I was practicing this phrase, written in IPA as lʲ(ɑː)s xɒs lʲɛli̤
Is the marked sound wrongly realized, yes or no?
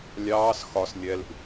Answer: no